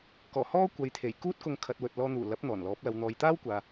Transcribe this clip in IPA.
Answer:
kɔː˨˩hɔː˥ kʷɐ˨˧jt̪ʰe˨˩j kuː˥t̚kʊ˧ŋ kʰɐ˨t̚wɵ˨t̚lɔː˧n̪uː˨˩ lɐ˨˥p̚n̪ɔː˨˩n lɔː˨˥p̚ lɐ˨wn̪ɔː˨jt̪aː˥wkʷaː˨

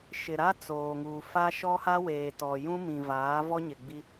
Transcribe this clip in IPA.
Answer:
ʃɪ˨ɾa˦ t͡soː˨ŋuː˨fa˦ ʃɔ˦ha˦weː˨tɔ˨ jũ˦mĩ˨vaː˨˦vɔ˦ ɲɪ˨ɡ͡bi˦

